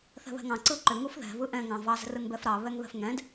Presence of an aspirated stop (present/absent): absent